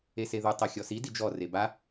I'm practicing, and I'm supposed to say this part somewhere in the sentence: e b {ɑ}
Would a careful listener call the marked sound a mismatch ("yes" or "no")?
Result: yes